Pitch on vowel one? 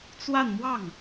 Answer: falling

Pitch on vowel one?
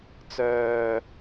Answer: low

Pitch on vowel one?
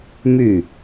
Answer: falling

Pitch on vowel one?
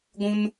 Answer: high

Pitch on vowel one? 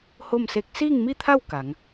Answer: falling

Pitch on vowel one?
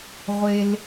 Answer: low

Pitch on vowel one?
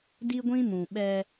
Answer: high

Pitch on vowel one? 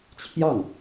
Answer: falling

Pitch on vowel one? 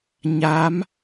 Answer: rising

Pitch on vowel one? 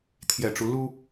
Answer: low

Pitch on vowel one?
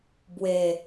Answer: low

